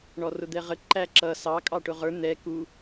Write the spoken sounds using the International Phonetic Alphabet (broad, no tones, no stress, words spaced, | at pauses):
ɳɔrʊd̪ɛʁə ǃæǁʌ sɑ kʼɑʈʊʁə˞ n̪ɛ ku